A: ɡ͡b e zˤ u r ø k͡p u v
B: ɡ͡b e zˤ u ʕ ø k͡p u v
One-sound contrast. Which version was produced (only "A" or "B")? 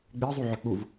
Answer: B